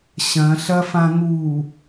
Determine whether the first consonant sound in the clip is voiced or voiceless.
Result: voiceless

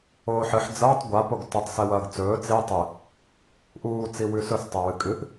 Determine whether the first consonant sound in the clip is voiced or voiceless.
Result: voiceless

